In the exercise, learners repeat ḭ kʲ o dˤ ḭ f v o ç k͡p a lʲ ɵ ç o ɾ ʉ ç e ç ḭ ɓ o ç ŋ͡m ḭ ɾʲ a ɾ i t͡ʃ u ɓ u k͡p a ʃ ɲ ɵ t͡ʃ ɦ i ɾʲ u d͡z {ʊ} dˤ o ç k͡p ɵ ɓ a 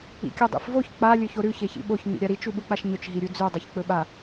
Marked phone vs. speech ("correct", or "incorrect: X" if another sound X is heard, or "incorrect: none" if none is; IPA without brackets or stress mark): incorrect: ʉ